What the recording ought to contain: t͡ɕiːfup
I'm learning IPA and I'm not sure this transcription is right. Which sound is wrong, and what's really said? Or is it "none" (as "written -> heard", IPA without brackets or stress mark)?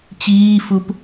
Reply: none